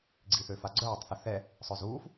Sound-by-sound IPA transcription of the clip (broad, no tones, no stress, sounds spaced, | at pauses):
ɡ͡ǀ i θ ø f a ɡ͡ǀ œː tˤ θ ə θ ɛ | sˤ œ z uː f